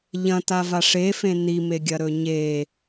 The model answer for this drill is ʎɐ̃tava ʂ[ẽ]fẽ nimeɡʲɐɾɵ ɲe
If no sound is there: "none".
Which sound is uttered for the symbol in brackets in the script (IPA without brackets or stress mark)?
e